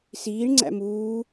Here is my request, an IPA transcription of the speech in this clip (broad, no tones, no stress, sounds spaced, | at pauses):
s iː ɳ ŋ͡ǀ æ̰ m uː